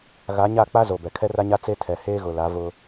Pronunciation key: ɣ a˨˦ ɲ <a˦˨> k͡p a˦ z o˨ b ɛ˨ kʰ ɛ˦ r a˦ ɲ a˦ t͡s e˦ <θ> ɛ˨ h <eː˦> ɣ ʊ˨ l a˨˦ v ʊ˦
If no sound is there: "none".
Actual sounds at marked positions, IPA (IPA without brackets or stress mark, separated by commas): a˦˨, tʰ, eː˦